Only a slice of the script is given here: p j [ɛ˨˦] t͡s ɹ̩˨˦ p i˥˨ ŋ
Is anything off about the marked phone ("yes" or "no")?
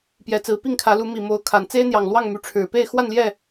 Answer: no